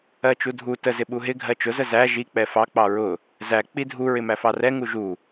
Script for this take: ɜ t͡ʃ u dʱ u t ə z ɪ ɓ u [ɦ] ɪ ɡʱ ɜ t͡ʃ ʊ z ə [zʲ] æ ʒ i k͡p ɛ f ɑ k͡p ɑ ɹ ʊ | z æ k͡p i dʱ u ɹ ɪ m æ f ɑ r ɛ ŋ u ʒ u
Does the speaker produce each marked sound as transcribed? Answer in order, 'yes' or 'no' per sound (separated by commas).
yes, no